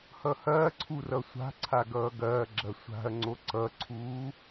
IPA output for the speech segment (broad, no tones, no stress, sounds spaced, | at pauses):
h ʌ h ɐː ǀʰ u r ʌ sʷ a̤ ǀʰ a ɡ ʌː ɡ ɐː ɡ͡ǁ ɐ sʷ a̤ ɐ̯ ŋ͡ǀ o ǀ ʌ ǀʰ uː